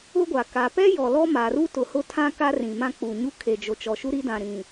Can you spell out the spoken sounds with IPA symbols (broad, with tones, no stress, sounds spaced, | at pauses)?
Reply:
ʊ˦ ɡʷ a˨ k a˨ p ɛ˦ j ɔ˨ l ɔ˦ m a˨ r u˦ t ʊ˨ h ʊ˦ tʰ ã˦ k a˦ r ĩ˨ m ã˦ k͡p u˨ ɲ u˦ kʰ e˨ d͡ʒ o˨ t͡ʃ ɔ˨ ʃ u˦ ɾ i˦ d ã˨ ɾ ĩ˨